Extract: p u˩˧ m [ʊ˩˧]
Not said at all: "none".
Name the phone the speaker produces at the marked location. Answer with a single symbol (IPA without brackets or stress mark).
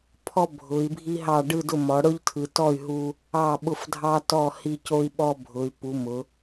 ʊ˩˧